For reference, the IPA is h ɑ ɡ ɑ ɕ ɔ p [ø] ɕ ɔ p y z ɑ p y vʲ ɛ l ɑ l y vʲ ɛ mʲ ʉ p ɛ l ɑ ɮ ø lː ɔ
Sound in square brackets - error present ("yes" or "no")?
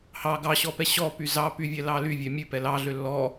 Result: yes